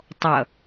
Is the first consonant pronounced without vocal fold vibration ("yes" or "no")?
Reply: yes